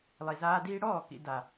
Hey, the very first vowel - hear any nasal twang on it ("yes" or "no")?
no